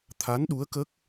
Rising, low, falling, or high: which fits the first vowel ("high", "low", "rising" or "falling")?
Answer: rising